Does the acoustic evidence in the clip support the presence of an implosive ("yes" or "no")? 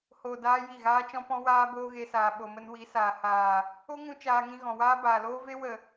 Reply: yes